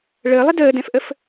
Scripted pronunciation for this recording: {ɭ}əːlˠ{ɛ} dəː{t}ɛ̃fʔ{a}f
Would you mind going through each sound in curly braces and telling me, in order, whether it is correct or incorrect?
correct, incorrect: ɪ, incorrect: d, incorrect: ə

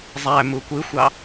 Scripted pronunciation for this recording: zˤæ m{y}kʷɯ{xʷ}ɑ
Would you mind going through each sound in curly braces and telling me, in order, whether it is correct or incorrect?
incorrect: u, correct

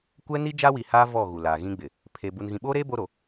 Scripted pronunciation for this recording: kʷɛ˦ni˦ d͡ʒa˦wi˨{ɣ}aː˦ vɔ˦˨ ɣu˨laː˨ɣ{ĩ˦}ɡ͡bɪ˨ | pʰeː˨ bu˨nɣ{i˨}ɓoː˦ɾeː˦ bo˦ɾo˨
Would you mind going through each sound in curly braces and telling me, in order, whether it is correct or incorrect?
incorrect: h, correct, incorrect: ĩ˨

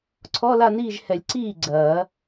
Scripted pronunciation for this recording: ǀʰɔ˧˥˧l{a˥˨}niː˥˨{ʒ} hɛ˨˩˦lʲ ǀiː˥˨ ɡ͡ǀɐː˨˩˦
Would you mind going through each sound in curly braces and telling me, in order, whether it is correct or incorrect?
correct, correct

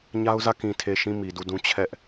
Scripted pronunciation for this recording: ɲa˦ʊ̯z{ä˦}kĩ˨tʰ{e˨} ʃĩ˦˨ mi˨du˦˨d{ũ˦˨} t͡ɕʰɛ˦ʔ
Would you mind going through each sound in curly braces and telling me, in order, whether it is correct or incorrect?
incorrect: ä˦˨, correct, incorrect: ũ˦

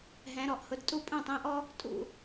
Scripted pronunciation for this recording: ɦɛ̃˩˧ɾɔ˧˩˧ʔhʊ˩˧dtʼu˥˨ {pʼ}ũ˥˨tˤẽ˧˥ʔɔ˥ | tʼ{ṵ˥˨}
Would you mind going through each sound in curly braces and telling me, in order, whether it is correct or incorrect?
correct, correct

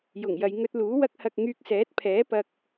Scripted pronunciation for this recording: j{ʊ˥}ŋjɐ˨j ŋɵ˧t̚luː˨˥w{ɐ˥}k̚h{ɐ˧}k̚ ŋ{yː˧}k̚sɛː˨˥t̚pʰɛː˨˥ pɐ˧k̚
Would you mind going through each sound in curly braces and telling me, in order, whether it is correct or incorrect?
incorrect: ʊ˨˩, correct, correct, correct

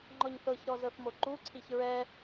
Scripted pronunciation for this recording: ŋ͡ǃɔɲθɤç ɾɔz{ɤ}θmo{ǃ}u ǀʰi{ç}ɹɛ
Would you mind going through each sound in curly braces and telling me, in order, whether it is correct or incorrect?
correct, correct, correct

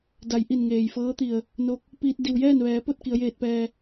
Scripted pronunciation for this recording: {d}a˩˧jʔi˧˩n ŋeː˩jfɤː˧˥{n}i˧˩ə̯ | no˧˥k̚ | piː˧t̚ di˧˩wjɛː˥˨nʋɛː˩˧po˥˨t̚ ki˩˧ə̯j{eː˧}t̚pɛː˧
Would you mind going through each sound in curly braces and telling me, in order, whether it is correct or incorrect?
correct, incorrect: t̪, correct

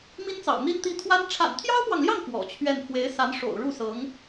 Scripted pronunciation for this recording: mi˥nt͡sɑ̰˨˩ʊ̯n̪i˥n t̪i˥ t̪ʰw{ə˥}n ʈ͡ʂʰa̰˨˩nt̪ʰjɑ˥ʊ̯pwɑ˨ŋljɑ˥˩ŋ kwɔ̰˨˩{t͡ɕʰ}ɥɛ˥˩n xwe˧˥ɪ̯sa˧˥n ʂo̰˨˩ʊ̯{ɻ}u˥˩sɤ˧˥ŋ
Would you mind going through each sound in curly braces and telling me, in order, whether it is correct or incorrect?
incorrect: a˥, correct, correct

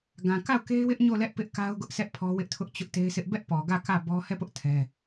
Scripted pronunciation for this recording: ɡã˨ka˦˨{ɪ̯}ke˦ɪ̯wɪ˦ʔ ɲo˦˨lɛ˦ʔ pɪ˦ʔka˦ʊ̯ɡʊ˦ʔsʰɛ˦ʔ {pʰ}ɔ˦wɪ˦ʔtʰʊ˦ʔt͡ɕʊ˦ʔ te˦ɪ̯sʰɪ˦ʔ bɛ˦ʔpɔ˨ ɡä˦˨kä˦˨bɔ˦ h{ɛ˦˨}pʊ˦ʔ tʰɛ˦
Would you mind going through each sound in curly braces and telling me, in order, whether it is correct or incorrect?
incorrect: ʊ̯, correct, correct

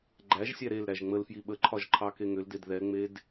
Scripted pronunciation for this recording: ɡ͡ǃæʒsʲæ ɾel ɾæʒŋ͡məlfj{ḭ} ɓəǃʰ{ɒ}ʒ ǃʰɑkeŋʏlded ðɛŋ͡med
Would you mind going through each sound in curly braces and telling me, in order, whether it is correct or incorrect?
incorrect: i, correct

